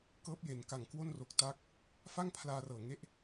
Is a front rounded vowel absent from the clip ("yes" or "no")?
yes